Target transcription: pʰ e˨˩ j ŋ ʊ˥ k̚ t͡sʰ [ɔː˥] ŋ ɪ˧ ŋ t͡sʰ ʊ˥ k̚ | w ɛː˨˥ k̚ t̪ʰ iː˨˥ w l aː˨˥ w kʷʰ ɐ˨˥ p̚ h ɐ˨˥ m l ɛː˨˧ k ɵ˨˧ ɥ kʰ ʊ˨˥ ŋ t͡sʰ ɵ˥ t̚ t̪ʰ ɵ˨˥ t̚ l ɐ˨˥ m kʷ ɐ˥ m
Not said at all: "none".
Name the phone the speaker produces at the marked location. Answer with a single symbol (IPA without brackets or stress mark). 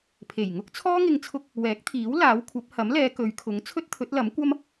ɔː˥